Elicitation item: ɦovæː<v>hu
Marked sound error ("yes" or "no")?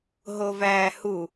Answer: yes